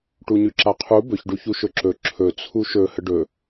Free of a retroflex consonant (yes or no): no